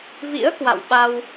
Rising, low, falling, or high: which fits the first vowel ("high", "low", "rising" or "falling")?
rising